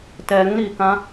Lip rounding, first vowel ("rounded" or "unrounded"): unrounded